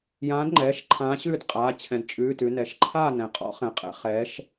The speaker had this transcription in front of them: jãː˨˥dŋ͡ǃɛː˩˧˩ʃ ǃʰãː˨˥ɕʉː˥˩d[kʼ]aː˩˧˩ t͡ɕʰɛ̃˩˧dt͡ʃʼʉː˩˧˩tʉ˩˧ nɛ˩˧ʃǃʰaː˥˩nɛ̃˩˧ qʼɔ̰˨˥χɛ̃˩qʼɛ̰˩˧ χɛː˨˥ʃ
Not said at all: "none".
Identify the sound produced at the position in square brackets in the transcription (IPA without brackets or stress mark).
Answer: qʼ